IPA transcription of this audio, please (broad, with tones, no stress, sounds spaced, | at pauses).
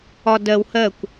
ɒ˧ d ɜ˧ w h ɜ˦˨ kʷ